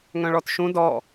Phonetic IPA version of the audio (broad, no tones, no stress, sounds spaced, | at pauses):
ŋ œ̃ ɭ ɔ t ʃ ũ d ɔ